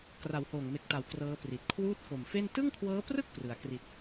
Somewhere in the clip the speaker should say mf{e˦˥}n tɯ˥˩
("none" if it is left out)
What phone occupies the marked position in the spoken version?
e˥˩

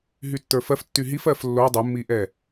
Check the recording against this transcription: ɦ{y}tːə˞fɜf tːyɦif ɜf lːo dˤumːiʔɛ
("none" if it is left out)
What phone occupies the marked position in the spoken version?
y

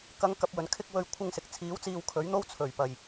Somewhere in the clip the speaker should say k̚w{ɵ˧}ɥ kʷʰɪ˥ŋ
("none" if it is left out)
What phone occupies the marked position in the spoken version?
ɵ˧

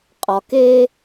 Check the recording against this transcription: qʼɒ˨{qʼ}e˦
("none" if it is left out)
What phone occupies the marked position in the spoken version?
k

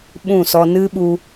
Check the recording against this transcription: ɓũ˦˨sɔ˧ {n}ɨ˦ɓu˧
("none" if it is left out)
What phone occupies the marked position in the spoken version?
n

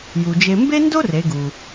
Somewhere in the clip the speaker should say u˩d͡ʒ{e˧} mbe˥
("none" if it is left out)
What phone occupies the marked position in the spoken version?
e˧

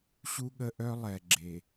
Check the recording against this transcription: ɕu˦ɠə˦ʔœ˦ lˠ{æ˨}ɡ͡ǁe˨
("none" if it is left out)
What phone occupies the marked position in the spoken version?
ɛ˨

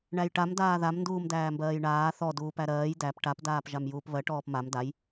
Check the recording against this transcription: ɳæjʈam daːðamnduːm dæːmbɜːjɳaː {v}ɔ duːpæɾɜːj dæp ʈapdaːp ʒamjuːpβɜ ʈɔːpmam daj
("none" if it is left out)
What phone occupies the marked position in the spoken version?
θ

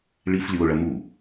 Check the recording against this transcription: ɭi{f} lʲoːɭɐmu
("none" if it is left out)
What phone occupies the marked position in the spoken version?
f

